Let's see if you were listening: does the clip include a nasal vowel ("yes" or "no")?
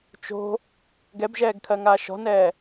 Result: no